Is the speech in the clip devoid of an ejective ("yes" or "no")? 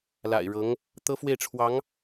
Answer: yes